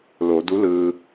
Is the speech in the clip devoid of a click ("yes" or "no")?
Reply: yes